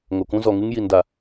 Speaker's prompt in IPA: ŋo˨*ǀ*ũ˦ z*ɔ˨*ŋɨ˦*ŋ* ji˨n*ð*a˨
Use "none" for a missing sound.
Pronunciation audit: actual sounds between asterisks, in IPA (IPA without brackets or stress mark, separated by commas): k, ɔ˨, ŋ, d